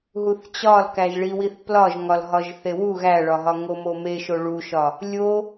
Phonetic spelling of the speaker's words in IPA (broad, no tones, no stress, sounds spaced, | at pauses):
ɦ u θ t͡ɕ ɒ l k æ ʒ ɭ i w i θ p l ɒ ʒ ŋ ɒ l ɦ ɒ ʒ θ e w u ɣ æ ɭ ɒ ɦ ɒ ŋ o m o m e ʃ o ɭ u ʃ ɒ | lʲ o